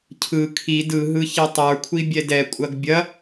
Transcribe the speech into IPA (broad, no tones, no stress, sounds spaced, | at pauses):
cʰ ɯ kʰ i d ɯ ɦ ɯ ç i tˤ ə˞ kʷʰ i bʲ ɛ d ɛ kʷʼ ɐ ɡ bʲ ɐ